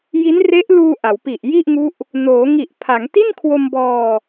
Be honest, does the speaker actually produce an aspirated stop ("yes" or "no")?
yes